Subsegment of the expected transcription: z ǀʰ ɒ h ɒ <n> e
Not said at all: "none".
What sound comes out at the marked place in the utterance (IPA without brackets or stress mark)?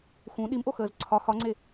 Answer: ŋ͡ǀ